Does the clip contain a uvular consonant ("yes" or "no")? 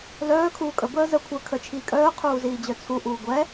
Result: yes